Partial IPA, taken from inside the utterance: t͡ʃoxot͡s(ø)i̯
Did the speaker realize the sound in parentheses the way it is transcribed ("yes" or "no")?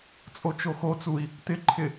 no